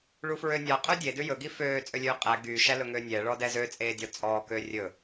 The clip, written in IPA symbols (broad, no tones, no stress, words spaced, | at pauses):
ɭufɹønʲɑ qʼødʲe dʉjɵ ɡiføː t͡sʼølʲøːqʼæ ɡy ʃælɵŋøːnʲɛ ɭɔdɛzø t͡sʼeːdʲɔt͡sʼɔː køːrʲɵ